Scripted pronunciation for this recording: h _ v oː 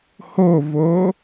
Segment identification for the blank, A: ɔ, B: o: B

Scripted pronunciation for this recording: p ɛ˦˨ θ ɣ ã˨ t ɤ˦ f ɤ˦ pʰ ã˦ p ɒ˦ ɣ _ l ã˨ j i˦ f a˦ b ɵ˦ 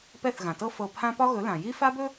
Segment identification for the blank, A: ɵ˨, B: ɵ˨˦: B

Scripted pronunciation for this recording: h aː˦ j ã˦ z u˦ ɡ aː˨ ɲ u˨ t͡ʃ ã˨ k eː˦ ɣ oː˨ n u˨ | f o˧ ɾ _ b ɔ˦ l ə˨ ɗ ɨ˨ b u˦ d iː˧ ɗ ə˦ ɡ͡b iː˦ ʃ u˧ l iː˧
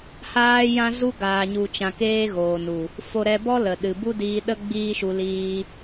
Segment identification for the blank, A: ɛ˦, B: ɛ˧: B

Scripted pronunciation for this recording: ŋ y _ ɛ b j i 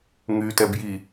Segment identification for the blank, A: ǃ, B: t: B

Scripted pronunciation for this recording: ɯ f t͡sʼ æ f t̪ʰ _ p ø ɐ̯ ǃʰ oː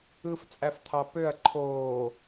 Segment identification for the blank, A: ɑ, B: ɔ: A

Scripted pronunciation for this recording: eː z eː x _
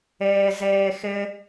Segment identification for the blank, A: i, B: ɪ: B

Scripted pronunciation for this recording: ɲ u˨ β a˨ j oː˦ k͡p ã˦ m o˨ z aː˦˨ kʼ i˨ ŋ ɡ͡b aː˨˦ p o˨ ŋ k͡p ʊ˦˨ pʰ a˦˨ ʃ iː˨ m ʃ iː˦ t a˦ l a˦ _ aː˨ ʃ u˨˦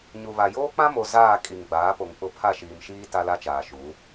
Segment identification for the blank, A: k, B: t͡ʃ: B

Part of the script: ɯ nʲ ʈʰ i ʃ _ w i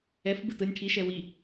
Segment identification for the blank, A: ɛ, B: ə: A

